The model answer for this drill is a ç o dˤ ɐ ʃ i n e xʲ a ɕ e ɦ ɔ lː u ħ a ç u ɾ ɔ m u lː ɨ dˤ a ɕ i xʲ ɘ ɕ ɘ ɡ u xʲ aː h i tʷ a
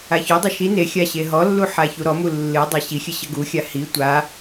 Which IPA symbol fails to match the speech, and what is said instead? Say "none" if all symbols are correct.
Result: aː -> a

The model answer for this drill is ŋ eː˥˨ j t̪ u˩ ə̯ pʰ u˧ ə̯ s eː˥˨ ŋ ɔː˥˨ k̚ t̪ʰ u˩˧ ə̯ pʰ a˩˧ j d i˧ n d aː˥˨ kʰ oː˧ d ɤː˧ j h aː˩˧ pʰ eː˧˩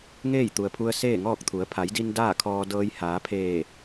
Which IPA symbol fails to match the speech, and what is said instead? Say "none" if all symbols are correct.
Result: oː˧ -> ɔː˧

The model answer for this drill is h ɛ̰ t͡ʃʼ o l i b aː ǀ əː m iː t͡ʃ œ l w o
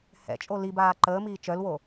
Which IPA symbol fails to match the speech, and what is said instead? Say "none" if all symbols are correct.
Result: ǀ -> ǃ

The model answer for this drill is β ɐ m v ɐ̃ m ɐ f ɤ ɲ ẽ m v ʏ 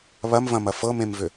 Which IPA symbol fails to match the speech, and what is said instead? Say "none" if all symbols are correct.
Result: ɲ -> m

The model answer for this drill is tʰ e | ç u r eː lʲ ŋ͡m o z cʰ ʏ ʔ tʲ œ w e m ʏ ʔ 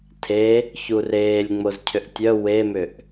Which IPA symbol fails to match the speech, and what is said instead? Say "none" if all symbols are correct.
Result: none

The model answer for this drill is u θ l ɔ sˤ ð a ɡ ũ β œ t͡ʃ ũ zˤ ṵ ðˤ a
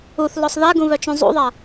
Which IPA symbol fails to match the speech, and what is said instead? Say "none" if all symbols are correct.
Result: none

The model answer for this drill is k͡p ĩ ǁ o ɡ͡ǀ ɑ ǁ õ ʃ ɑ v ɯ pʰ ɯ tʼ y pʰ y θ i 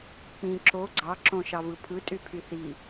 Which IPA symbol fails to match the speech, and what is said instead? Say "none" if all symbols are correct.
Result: none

